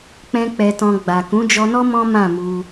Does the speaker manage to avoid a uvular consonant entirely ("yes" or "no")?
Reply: yes